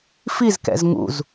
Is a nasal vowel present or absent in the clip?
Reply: absent